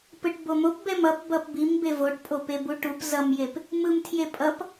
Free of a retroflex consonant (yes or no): no